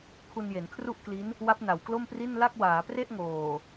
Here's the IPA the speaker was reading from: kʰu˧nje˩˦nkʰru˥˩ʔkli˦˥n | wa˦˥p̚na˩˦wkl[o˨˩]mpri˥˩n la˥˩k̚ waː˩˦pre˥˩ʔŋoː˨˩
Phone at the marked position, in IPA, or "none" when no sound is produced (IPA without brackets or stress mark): o˥˩